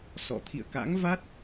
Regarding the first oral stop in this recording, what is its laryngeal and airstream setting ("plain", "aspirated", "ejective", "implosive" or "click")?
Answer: aspirated